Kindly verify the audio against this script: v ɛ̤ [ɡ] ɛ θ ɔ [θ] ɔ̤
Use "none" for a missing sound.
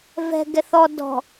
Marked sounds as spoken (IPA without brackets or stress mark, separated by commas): ɡ, d